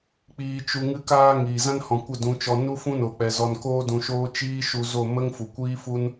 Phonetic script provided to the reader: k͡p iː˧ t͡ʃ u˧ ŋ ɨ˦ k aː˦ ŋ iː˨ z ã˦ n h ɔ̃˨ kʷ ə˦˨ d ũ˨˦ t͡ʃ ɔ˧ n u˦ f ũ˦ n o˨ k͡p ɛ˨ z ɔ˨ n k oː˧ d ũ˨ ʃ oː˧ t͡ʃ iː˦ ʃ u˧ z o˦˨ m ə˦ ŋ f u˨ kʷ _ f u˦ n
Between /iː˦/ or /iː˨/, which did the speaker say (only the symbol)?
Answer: iː˦